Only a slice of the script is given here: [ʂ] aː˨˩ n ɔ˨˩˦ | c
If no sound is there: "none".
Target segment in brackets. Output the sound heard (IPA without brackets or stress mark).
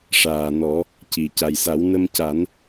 ʂ